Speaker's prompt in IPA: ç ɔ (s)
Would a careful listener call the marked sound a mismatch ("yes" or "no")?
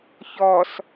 no